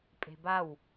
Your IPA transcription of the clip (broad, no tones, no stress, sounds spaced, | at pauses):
pʼ e̤ b a w